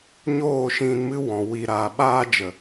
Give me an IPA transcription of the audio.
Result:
ɲoː˦˨ʃĩ˧nmɨ˦wɔ̃˨ wi˨ɾaː˨ ɓaː˧d͡ʒə˨

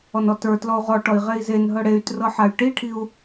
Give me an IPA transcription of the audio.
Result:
ɔnɔtə˞tlɔu̯ ʁɔʈɔi̯ ʁei̯zenɦɤ ɽey̯ trɤħay̯ʈiʈʰiu̯

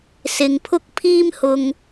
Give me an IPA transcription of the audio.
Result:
sɪ˨ŋpʰʊ˥k̚ pʰiː˥mhʊ˧ŋ

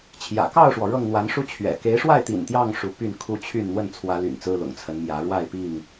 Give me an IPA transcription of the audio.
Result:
t͡ɕʰjä̰˨˩ kɑ˥˨ʊ̯ʂwɔ˩ ɻɤ˥˨ŋ n̪wa˨˦nʂu˦ t͡ɕʰɥɛ̰˨˩ ke˨˦ɪ̯ʂwa˥˨ɪ̯t̪ḭ˨˩n t̪jɑ˥˨ŋ ʂu˨˦py˥˨nkʰu˥˨ t͡ɕʰy˥˨n n̪wə˥˨nt͡sʰwä˨˦ly̰˨˩n t͡sɹ̩˦lʊ̰˨˩ŋt͡sʰə˨˦nmjä˨˦ ɻwa˥˨ɪ̯pi˥˨ŋ

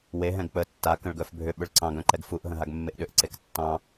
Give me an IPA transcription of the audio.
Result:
weɦɛ̃ɡ k͡pə tːa kə̃ɭɡœfbʱʏ ɓʏɭǀɑ̃ɡœ̃ǃɛɡ fuʔɦə̃ɦaɡ mːeʔɗʏʔǀek tːɑ̃

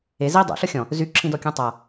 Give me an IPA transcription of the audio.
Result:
e zi dˤo̰ɬɤ xʲɔ̃ | zyǁʰĩdɔkʲõ tˤa

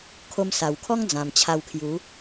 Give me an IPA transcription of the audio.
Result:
kʰo˧msa˨˩wkʰɔ˦ŋ d͡zã˨˩mt͡ɕʰa˧wkʰju˨˦

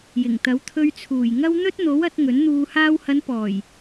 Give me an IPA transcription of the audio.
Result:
jɪ˨˩ŋt̪ɐ˨˥w t̪ʰɵ˧ɥt͡sʰuː˨˩j ŋɐ˥w n̪ɵ˥t̚n̪o˨˥w ɐ˨˥t̚ ŋɵ˨˥n n̪uː˨haː˧whɐ˨˧n pɔː˨˩j

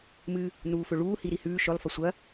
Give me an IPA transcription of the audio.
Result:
mɨ | nuːfɵɭuː hiɾihʉː ʃɵlˠ fɐsʷɐ

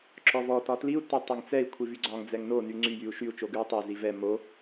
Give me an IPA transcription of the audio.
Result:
ǁɔvɔ tɒtliu̯ tɛtˤʌŋt͡sɛi̯ kʷʰivyɡ͡ǀɒŋ d͡zɛŋno nyŋ͡ǀy jyu̯ʃyu̯ t͡ʃoɡʉu̯tˤe zivɛ mo

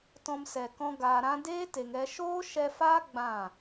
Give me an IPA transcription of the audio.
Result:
tɔ̃˧msɛ˨kɔ̃˧ ɡaː˨ ɾã˧deː˦ te˨ŋɛ˧ ʃoː˦ʃɛ˧fa˦ ɡ͡bã˦˨

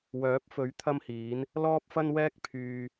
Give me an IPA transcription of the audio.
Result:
wœː˨˥p̚fɵ˨˥ɥ t̪ʰɐ˥mhiː˨˥n | lɔː˥p̚fɐ˥nwɛː˥k̚ pʰyː˧

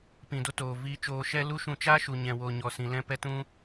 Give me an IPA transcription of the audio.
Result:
pĩ˨do˧ toː˨ viː˧ t͡ʃoː˧ʃɛ˦ lu˦ʃũ˧ t͡ʃa˦ʃu˨ ɲɛ̃˨woː˨ ɲɔ˨sĩ˨ lɛ̃˦pɛ˦ tũ˦

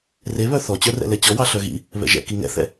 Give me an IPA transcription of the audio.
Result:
reβœ θɔt͡ɕœ rɛ̰lɛt͡ɕɔwɑ ɬœɣḭ | βɛ̰ʒɛ̰ kiŋɛ̰θɛ̰

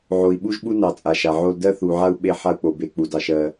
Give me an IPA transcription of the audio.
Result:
ʕo˨i̯ɓu˦ʒɓu˦nɑ˨ t͡sʼa˨ʃa˨ʕo˦l dɜ˦θu˨ʕa˦u̯ ɓe˦ħa˦u̯k͡po˨ be˨ k͡pu˨d ɑ˨ʃɜ˦

